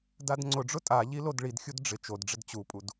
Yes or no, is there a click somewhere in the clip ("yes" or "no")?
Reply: yes